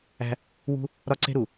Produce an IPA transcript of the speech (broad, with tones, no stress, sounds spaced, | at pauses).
æ̤˦ | w ṳ˦ | ɾ ɒ˦ ǀ e̤˦ ɾ u˨